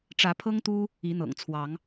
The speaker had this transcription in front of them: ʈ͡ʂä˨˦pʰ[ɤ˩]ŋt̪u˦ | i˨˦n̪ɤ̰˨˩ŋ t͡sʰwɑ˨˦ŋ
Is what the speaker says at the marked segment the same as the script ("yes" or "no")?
no